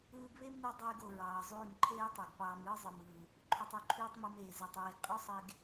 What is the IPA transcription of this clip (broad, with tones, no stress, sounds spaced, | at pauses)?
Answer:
ɯː˧ ɡ β e˦ m n ɯ˧ dˤ yː˧ ɡ o˨ ɹ ɑː˨ zˤ yː˦˨ m ǃʰ eː˦ tˤ e˨ ɡ p ɑː˧ m ɯː˦ zˤ ɯ˨ m ɯː˨ | ǃʰ y˨ tˤ u˨ ǃʰ yː˧ tˤ m ɯ˧ m eː˨ z e˨ tˤ ɹ e˨ ɡ qʼ o˦ sˤ e˧ ɡ